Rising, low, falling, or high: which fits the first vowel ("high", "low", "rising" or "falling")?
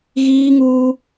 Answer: high